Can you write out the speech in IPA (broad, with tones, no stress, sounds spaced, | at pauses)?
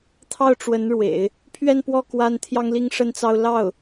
t̪ʰ ɑ˥˩ ʊ̯ ʈ͡ʂ w ə˧˥ n ɻ w ḛ˨˩˦ ɪ̯ | pʰ ɥ ɛ˥˧ n p w ɔ˥˩ k w a˥ n t̪ʰ j ɑ˥ ŋ l i˥ ŋ ʂ ə˥ n t͡s ɑ˥ ʊ̯ l ɑ˥˩ ʊ̯